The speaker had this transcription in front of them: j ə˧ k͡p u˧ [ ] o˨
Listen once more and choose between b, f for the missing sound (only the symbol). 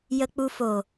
f